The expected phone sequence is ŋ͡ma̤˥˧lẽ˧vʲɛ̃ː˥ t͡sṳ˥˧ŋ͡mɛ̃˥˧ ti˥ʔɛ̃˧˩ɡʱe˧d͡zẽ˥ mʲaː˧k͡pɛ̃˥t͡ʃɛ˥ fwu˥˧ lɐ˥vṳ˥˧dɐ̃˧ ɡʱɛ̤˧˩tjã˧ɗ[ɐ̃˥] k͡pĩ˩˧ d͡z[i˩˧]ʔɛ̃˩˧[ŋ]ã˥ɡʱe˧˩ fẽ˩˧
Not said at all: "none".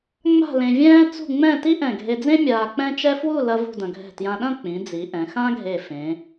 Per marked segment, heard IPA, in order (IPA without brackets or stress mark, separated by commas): ɐ̃˥˧, i˩˧, x